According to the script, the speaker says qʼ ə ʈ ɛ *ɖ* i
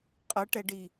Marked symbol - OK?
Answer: yes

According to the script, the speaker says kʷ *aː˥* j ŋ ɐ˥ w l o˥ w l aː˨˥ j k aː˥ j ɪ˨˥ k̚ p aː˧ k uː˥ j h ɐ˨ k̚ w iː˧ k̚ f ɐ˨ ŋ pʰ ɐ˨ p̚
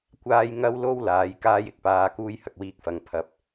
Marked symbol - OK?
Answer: yes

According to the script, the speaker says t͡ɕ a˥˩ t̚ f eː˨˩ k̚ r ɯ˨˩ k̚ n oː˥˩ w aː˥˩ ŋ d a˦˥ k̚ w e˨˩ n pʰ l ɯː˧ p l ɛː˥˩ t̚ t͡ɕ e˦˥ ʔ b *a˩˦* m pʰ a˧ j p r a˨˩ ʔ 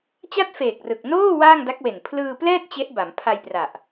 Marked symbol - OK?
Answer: yes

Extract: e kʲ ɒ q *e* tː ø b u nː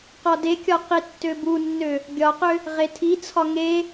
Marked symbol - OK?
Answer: no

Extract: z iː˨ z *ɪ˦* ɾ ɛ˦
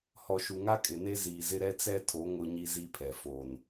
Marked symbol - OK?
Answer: yes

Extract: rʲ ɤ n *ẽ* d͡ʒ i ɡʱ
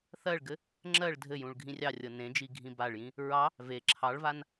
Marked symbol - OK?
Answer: yes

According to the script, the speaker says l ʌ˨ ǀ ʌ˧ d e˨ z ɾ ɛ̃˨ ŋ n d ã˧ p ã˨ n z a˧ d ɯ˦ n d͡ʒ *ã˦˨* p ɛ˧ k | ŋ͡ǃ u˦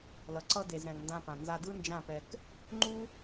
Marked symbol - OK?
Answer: yes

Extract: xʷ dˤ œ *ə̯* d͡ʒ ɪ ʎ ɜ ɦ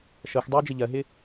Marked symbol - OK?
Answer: yes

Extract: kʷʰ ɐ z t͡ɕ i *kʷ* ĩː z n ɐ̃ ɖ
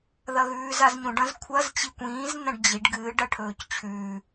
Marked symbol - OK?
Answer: yes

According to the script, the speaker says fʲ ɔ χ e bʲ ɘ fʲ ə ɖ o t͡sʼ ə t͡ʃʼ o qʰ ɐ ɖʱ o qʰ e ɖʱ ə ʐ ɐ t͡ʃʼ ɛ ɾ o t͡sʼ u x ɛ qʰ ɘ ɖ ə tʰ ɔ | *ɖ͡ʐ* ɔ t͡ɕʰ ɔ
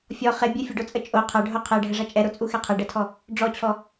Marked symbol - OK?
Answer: yes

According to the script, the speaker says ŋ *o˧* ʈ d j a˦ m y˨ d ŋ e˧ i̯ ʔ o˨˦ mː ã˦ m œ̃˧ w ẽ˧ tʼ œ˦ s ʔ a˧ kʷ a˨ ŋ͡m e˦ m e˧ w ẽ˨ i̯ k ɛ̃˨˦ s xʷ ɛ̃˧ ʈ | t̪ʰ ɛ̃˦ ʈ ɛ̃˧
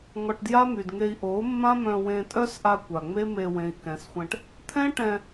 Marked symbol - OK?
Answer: no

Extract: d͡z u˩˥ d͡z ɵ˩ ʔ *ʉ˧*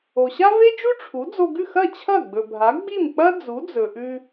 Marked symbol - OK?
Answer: yes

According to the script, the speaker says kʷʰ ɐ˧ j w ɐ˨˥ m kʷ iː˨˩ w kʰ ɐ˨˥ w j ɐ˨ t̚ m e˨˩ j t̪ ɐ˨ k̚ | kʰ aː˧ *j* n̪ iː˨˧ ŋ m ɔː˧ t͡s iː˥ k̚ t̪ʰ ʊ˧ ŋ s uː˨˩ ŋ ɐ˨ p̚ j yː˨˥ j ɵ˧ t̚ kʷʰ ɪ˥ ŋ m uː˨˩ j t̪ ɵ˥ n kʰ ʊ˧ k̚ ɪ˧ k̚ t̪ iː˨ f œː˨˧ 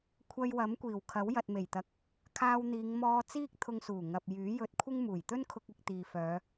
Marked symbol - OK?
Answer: no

